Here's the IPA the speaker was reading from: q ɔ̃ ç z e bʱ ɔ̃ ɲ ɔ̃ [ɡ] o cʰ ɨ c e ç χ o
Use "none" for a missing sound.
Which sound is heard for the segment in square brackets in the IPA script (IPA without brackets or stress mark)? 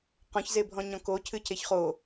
k